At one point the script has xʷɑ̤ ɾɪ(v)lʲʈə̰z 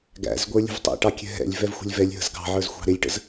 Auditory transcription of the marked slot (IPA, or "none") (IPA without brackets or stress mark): none